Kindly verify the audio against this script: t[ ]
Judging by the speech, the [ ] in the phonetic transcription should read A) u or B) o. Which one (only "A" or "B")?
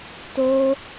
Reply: B